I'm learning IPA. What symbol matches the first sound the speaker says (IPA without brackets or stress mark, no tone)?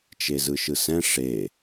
t͡ʃ